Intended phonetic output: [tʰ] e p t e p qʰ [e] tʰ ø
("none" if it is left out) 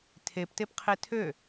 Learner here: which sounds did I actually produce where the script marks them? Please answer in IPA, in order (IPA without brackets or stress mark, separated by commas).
tʰ, e